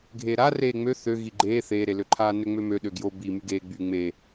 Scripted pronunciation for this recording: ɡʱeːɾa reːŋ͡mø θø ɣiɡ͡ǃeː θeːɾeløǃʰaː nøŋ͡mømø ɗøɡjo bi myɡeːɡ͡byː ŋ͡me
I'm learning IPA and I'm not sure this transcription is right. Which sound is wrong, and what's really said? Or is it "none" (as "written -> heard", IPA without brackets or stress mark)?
none